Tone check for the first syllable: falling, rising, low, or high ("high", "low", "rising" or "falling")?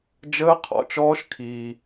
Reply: high